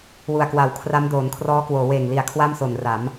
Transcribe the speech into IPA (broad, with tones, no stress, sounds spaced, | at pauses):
w u˨˩ a̯ k w a˨˩ w kʰ r a˦˥ m d oː˩˦ n kʰ r ɔː˦˥ k w oː˩˦ w eː˨˩ ŋ l i˩˦ a̯ kʰ w a˥˩ m s o˨˩ n r a˩˦ m